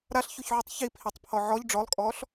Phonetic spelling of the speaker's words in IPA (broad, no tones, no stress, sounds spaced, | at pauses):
ɾ a ɬ ç u ç ʕ u tˤ ç i pʰ i tˤ pʰ ɔ ʕ ɔ ʎ ɖ͡ʐ ɔ lˠ kʼ ɔː ɬ